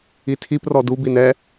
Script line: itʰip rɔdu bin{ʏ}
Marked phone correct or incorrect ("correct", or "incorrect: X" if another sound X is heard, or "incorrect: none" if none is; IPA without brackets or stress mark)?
incorrect: ɛ